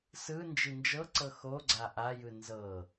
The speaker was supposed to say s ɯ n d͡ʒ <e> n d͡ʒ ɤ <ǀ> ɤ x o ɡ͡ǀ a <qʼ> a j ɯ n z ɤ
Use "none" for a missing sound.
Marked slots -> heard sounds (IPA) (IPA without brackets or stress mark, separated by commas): i, ǀ, ʔ